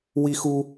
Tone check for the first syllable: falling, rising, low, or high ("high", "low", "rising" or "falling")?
high